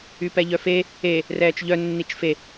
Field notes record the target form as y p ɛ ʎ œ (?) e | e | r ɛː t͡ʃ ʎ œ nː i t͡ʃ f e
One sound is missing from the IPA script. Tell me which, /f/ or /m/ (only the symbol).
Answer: f